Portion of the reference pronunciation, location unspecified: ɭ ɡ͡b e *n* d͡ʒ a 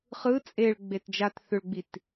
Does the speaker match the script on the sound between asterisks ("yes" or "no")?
no